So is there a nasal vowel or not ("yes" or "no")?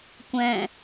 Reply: yes